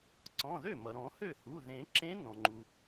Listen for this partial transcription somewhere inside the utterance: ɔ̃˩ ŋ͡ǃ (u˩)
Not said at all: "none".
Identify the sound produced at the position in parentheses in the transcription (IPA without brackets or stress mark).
u˩